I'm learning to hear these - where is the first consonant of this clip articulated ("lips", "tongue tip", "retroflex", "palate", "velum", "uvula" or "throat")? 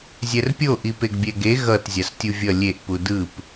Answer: tongue tip